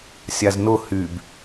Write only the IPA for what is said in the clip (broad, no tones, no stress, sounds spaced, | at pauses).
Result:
sʲ a z n ʊ h y b